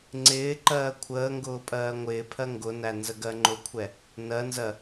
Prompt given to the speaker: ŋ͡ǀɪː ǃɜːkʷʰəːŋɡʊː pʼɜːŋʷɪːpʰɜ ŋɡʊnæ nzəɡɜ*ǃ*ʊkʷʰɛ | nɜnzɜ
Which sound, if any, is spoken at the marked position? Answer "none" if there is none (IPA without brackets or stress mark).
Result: ŋ͡ǃ